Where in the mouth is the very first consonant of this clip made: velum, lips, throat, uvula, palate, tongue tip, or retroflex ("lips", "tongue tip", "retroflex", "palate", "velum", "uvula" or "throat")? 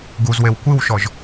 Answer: velum